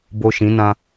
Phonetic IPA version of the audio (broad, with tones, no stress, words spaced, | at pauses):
bo˨ ʃĩ˨˦nã˦